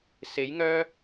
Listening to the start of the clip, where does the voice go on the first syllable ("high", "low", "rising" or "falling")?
rising